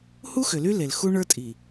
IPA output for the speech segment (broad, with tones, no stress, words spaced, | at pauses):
hu˦xʏ˨ly˦le˨l xu˦ɳə˞˦tʼi˨